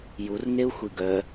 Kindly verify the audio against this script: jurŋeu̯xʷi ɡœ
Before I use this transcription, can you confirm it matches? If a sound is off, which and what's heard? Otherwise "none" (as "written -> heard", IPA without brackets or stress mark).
none